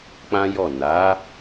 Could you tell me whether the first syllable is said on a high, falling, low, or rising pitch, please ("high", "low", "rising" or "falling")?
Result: high